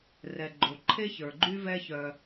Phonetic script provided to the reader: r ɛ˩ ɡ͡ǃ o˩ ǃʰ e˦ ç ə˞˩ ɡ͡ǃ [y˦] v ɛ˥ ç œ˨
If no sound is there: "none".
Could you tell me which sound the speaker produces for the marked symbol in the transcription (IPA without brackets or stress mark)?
y˦